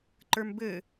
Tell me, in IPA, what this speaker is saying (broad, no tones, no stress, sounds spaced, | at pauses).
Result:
ǃ ə˞ m b ɘ